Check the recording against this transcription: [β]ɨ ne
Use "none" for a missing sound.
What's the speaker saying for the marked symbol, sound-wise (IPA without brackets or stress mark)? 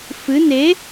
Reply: f